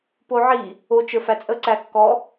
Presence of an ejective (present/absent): present